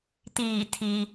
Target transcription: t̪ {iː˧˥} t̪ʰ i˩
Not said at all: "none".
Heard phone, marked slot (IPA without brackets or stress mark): iː˧˩